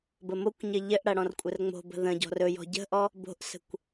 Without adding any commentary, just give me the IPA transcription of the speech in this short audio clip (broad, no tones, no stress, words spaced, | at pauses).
bəmokʷɲɘ ʎɘʔɽɐ ɽɔ̃rkʷʼərŋ͡mo̤bə̤ ðə̃ ɟɔ̤rɵjɔ̤ ɟə̤ʔɔ | bo̤ʔsə̤kʷ